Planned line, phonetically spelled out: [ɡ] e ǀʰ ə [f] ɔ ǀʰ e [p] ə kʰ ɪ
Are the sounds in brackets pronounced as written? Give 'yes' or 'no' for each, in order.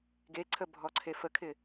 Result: yes, no, no

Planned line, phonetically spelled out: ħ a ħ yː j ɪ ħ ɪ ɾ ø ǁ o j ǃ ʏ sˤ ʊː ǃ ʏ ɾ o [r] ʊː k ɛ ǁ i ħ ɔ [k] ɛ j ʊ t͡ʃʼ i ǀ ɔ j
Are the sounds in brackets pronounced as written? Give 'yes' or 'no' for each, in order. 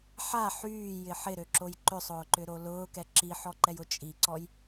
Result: no, no

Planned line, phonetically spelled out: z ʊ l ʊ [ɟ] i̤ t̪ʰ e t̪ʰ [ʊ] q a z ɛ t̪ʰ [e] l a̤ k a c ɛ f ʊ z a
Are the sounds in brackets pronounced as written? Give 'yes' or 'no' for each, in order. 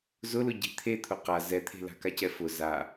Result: yes, yes, no

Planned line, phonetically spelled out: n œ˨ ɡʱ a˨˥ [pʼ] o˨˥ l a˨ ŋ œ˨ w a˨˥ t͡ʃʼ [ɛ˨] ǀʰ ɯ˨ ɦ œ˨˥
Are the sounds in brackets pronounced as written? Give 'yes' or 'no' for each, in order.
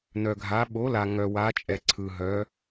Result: no, yes

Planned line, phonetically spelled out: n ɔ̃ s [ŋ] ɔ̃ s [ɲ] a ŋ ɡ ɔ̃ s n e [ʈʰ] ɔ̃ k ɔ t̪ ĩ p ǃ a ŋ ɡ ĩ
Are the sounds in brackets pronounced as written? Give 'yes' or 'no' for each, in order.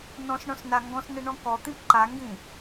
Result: no, no, no

